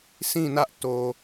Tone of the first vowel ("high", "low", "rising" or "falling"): falling